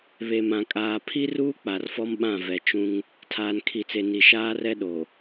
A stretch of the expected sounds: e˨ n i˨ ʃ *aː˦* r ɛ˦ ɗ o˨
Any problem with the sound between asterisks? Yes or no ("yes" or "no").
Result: no